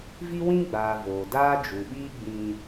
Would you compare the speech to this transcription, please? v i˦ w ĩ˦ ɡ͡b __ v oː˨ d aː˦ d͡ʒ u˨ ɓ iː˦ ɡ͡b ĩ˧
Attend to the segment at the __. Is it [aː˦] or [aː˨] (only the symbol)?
aː˨